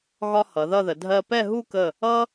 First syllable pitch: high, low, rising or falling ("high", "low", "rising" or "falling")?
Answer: high